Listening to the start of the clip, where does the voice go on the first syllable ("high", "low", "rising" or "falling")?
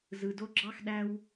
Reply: low